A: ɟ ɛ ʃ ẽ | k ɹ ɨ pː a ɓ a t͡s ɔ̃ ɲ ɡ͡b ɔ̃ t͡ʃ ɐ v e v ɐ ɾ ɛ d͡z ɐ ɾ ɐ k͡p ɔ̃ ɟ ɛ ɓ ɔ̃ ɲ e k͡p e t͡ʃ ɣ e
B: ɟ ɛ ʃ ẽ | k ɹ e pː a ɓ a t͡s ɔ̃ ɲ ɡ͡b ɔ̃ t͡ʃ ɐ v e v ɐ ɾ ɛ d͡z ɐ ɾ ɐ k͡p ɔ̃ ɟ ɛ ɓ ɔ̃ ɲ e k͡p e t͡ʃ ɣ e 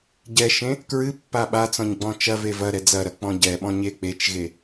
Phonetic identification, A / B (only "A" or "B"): A